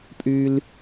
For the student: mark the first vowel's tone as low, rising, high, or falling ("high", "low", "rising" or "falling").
high